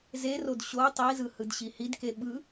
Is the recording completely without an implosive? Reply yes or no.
no